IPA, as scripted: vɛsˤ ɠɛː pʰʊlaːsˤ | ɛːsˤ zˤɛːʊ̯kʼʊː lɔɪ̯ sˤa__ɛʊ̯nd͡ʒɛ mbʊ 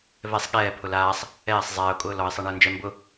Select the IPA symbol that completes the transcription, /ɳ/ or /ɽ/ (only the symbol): ɳ